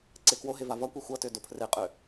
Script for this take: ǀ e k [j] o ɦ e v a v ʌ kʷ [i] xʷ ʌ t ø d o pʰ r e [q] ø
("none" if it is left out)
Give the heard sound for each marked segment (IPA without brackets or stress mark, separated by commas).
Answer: w, e, qʼ